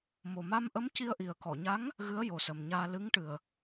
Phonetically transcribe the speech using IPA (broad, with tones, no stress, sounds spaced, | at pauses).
m o˨˩ m a˧ m ʔ ə˧˥ m c i˧ ə̯ ʔ i˨˩ ə̯ k ɔ˨˩˨ ɲ a˧˥ ŋ | ɣ ɨ˧˥ ə̯ j o˨˩ s ə˨˩ m ɲ aː˧ l ɨ˧˥ ŋ ʈ ɨ˨˩ ə̯